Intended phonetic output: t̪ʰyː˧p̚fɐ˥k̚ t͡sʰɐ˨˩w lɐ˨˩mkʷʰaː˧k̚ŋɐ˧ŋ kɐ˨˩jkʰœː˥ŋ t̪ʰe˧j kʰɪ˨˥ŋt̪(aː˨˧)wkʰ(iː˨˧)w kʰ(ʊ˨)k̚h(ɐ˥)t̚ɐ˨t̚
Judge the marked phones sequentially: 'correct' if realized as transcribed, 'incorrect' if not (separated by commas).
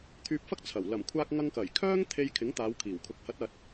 correct, incorrect, correct, incorrect